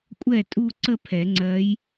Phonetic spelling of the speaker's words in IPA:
kʷʼɛ˥˩tʼu˥˧ǀə˥˧ pʰɛ˨˩˦ ŋ͡ǀɜ˧˥j

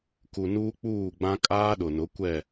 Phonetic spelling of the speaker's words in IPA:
ku˨nuː˦k͡puː˦˨ɡ͡bã˦ kʼaː˦ɗʊ˨nʊ˨˦ kʷɛ˦˨

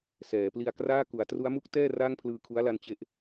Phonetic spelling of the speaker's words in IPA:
sɛː˩˦pli˧a̯kraː˥˩ ku˩˦a̯tru˦˥a̯mu˦˥k̚tɛː˥˩ raː˥˩ŋpʰlɯː˧kʰu˦˥a̯la˧n t͡ɕe˥˩ʔ

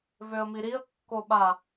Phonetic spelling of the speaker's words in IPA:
vøə̯miɾiə̯ kːoɓa

